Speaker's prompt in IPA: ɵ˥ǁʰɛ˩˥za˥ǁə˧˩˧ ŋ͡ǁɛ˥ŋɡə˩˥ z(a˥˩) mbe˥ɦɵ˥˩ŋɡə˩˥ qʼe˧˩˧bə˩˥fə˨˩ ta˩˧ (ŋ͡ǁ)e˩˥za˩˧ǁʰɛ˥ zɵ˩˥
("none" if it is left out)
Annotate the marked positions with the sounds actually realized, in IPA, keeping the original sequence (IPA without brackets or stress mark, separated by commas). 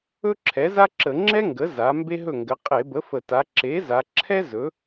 a˩˧, ǁ